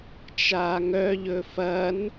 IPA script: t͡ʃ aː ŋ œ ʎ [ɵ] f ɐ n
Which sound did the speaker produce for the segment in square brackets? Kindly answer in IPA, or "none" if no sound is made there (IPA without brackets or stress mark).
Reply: ɵ